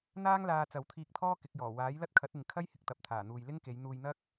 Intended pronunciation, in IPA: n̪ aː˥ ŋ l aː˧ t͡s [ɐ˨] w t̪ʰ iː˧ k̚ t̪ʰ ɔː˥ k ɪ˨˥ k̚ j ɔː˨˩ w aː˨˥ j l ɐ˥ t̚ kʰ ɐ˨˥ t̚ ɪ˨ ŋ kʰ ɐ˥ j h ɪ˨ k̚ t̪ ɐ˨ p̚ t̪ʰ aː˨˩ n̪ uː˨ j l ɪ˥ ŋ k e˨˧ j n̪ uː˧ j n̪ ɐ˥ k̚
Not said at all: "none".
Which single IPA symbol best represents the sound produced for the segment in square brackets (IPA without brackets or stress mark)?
ɐ˨